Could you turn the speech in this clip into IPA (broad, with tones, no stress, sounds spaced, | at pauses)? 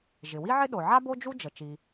ʒ ɪ˩ w i˥ ʕ ɪ˥ ɗ o˩ ʕ a˥ b o˥ d͡ʒ u˥ d͡ʒ ə˩ t͡ʃ i˩